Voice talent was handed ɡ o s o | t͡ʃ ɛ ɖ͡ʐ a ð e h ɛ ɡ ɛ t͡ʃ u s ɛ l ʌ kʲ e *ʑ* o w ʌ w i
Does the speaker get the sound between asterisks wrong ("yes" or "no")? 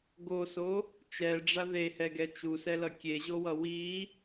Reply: no